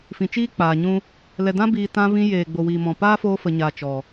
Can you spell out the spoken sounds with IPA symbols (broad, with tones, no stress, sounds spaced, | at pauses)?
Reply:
f ĩ˨ t͡ʃ iː˦ k͡p aː˨ ɲ ũ˦ | l ɛ˨ d ã˦ b iː˧ t ã˧ v ĩ˧ j eː˨ ɡ͡b o˨ w iː˨ m ɔ̃˨ p aː˦ f oː˧ f ə˨ ɲ a˨ t͡ʃ ɔ˨